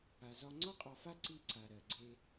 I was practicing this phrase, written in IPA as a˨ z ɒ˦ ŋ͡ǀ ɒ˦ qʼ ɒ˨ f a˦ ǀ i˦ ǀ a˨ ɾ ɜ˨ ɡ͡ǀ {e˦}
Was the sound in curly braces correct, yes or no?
yes